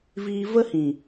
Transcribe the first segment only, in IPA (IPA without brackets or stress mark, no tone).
v